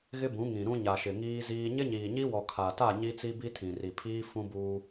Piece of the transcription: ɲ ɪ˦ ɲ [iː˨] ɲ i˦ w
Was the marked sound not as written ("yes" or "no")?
no